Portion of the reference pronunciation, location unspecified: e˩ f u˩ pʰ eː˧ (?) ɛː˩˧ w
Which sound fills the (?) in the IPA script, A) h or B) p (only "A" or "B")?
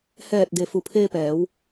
B